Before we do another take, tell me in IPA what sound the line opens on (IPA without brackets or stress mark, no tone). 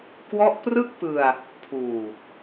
k